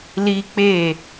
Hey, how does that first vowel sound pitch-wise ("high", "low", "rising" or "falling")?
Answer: high